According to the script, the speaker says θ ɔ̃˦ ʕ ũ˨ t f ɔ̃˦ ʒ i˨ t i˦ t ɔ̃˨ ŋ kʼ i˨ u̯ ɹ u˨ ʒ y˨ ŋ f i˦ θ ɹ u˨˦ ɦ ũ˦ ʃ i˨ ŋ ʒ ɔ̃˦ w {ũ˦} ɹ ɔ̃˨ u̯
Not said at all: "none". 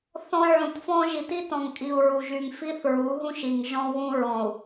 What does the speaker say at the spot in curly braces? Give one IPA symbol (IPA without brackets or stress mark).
ũ˦